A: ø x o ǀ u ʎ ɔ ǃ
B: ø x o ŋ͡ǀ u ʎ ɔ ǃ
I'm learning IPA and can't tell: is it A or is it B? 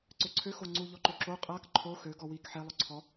B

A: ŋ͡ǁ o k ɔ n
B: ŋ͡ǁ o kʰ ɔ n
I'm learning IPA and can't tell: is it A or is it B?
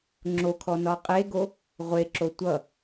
B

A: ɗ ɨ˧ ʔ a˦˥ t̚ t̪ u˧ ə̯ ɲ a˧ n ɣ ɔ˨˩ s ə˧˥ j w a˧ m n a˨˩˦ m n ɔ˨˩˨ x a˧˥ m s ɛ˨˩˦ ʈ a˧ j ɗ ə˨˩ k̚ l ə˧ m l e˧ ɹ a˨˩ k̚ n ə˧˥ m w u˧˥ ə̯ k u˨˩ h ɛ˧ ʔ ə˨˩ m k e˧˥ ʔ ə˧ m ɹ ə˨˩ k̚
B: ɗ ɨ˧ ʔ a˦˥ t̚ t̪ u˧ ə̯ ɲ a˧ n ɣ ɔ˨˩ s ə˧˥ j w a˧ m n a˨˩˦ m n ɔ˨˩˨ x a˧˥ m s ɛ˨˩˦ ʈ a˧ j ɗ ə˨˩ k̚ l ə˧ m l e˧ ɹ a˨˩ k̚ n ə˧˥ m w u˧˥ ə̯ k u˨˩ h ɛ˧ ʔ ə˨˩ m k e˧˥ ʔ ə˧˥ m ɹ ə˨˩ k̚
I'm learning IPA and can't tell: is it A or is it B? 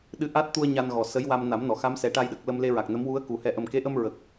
A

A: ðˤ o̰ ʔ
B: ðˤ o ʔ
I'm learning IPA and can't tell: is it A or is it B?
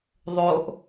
B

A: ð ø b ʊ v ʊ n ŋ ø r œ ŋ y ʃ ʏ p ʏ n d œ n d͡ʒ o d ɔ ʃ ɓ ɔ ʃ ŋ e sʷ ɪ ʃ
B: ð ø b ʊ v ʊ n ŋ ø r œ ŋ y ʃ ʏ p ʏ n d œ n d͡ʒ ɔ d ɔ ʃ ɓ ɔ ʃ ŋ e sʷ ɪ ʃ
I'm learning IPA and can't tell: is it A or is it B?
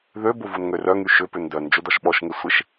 A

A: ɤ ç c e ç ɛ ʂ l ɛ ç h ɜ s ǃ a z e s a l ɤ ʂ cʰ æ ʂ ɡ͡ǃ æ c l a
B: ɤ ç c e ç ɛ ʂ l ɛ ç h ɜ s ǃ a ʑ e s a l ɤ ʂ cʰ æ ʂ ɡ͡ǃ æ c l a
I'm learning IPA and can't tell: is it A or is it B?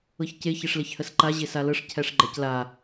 B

